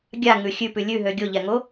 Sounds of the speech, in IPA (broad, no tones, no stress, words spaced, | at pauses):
ɡʲaŋʉ xʲʉpʉ lʲʉɦø ɡʲoʎɛŋo